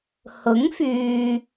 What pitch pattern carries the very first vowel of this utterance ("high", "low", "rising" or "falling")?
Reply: rising